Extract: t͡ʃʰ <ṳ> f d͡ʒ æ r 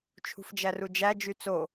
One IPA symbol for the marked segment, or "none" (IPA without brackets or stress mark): ṳ